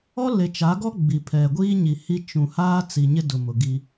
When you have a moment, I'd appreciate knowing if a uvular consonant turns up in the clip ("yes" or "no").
no